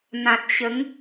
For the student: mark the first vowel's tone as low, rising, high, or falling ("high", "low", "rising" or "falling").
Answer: low